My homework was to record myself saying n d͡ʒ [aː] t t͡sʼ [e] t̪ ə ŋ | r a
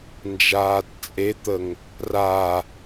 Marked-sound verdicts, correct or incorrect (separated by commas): correct, correct